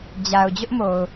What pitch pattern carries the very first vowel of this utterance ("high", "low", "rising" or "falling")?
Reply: low